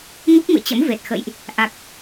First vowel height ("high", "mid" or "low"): high